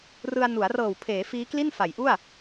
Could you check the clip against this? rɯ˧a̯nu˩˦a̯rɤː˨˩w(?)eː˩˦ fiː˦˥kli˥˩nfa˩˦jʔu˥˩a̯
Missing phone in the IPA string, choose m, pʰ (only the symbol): pʰ